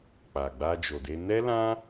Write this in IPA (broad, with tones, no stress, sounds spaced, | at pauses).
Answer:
k͡p a˨ ɡ͡b a˧ d͡ʒ o˨ d e˧ n ɛ˦ l ã˦